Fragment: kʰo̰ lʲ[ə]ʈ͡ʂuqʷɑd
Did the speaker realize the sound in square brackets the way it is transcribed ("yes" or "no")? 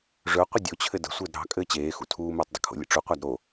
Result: no